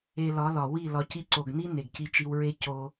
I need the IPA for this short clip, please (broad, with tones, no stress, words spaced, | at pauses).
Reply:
e˧lɒ˨˦lɒ˨ wi˦˨ lɒ˧ci˦ ǀo˨ɡni˦ ne˨ɡci˧t͡ʃi˧wɹe˦ co˧